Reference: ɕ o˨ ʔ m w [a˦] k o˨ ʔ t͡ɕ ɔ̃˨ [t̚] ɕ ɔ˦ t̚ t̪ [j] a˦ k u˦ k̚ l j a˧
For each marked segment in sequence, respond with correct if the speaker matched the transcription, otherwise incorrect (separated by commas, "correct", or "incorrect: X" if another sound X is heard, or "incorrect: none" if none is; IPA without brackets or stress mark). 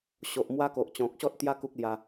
correct, incorrect: k̚, correct